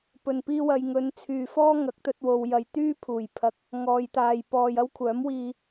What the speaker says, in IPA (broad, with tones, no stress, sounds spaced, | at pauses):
p ɵ˨˩ n p iː˧ w ɐ˨ j ŋ ɵ˨˧ n t͡sʰ yː˨ f ɔː˥ ŋ ɐ˨˥ k̚ t̪ ɵ˧ t̚ w o˨ w j ɐ˨ j t̪ yː˥ pʰ uː˨˩ j pʰ ɐ˧ k̚ | ŋ ɔː˨ j t̪ aː˨ j p ɔː˧ j ɐ˥ w kʷʰ œː˨˥ m w iː˧